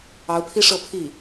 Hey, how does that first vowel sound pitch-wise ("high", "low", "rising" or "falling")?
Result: rising